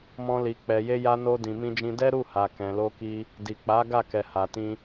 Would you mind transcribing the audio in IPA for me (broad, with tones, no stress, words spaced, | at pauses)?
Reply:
mɔ̃˧li˨ k͡pɛ˨je˧ja˧no˧ dĩ˨mĩ˧d͡ʒĩ˧ dɛ˦ɾu˦˨ha˨ kɛ̃˨lo˧ki˧ | di˨k͡pa˨˦ ɡa˦˨kɛ˨ha˨tĩ˧